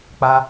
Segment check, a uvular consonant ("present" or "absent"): absent